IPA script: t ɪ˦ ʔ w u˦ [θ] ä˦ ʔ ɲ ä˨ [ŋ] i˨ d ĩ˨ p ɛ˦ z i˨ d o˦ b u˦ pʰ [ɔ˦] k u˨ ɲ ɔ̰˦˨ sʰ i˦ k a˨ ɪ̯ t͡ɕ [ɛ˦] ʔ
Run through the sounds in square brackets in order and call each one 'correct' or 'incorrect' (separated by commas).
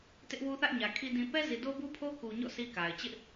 correct, incorrect, incorrect, incorrect